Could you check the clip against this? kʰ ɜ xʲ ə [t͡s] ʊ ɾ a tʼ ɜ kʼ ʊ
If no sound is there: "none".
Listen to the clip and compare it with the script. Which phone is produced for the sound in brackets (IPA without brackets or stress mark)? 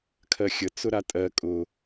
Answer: t͡s